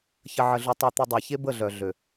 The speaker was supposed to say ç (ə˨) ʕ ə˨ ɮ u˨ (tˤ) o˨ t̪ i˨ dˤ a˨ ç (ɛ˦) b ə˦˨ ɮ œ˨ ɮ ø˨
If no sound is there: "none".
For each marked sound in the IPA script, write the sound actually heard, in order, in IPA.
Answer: ə˨, tˤ, e˦

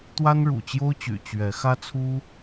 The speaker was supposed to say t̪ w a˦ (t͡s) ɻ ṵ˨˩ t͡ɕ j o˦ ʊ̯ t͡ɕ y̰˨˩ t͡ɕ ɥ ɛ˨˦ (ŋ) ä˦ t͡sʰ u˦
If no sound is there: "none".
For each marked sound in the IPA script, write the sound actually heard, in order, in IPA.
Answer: n, x

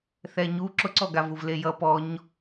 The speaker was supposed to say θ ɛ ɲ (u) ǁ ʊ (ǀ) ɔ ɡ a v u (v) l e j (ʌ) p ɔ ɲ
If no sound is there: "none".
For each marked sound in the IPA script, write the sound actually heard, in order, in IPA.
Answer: u, ǀ, v, ʌ

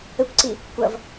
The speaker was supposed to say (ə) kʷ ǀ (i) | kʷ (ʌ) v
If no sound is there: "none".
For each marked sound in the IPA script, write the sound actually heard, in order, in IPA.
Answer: ə, i, ʌ

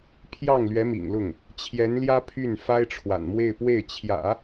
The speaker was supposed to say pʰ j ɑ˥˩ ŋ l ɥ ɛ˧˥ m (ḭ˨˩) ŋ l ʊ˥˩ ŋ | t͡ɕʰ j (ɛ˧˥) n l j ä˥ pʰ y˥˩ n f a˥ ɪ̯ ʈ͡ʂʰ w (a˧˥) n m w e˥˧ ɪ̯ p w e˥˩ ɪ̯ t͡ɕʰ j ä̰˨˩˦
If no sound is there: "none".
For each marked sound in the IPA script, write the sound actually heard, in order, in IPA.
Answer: ḭ˨˩, ɛ˧˥, a̰˨˩

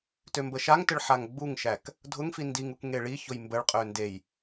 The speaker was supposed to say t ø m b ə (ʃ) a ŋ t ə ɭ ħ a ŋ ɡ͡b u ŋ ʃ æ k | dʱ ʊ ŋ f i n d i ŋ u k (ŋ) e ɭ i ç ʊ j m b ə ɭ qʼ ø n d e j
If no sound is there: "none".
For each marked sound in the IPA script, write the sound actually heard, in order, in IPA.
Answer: ʃ, ŋ

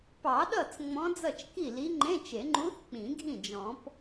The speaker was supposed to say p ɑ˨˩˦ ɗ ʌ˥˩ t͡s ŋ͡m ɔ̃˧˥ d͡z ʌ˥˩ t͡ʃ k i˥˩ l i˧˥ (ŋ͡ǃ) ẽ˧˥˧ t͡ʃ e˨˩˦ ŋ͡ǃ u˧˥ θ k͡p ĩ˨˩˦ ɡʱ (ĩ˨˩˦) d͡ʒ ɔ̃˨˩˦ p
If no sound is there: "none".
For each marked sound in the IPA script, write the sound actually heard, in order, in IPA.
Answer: ŋ͡ǃ, ĩ˥˩

